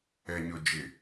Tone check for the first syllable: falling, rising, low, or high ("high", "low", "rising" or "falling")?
low